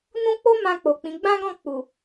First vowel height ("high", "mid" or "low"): high